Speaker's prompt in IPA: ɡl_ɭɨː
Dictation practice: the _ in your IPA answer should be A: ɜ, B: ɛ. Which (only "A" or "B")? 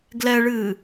B